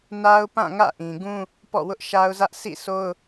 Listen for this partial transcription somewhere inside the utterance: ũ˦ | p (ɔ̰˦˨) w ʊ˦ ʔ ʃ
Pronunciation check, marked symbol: correct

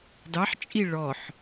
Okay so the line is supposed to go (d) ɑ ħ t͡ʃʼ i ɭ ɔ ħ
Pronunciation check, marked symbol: correct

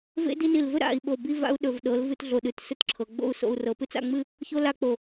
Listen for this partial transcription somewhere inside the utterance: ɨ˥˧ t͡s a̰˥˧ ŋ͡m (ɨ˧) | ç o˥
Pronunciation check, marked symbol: incorrect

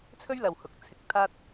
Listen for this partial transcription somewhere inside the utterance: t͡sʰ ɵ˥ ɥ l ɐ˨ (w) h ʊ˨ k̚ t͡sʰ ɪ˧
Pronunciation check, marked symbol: correct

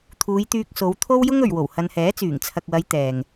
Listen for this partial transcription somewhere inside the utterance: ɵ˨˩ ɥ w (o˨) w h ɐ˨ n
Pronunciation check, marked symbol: incorrect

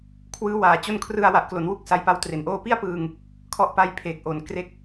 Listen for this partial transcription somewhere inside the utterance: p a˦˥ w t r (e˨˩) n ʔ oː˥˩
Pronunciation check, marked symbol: correct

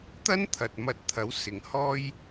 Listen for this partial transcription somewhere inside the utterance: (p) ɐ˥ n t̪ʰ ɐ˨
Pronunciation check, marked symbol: incorrect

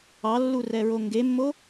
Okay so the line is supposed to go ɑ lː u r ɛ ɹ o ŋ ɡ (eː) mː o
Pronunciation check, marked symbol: incorrect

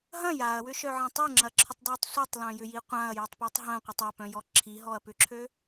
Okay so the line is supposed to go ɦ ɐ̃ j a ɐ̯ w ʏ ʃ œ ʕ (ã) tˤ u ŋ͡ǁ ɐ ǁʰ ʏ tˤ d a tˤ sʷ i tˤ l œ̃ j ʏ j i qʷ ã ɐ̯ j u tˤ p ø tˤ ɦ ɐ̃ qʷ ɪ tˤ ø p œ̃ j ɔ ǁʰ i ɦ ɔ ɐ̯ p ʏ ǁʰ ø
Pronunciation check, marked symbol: incorrect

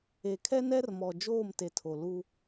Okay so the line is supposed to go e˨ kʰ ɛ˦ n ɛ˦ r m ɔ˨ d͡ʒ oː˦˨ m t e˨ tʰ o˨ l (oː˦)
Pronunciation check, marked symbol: incorrect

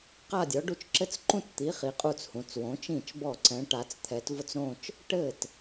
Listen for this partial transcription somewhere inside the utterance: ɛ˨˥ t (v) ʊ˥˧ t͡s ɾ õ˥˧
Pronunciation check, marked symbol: correct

